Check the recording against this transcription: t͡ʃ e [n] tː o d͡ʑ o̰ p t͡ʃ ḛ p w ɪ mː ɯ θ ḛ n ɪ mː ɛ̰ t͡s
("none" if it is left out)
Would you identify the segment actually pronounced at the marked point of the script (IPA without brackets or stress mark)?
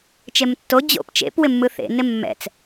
m